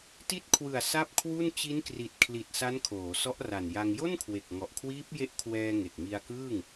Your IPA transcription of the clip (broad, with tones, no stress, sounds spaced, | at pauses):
t i˦˥ t̚ kʰ w ɯ˨˩ a̯ s a˥˩ p̚ kʰ w u˥˩ n t͡ɕ i˦˥ n k r i˨˩ t̚ kʰ l i˨˩ t̚ s a˦˥ n kʰ oː˩˦ s ɔ˦˥ ʔ r a˨˩ n j a˧ ŋ j o˥˩ n kʰ w e˨˩ k̚ ŋ ɔ˨˩ ʔ kʰ w iː˦˥ p̚ j e˦˥ ʔ kʰ w ɛː˧ ŋ e˨˩ k̚ m i˧ a̯ k ɯː˥˩ ŋ